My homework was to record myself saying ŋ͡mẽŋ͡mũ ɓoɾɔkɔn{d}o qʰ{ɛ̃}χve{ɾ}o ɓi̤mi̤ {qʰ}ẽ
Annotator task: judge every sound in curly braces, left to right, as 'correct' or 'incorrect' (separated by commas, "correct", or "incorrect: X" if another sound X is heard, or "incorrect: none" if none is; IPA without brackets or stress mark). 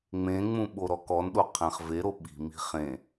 incorrect: ɗ, correct, correct, incorrect: χ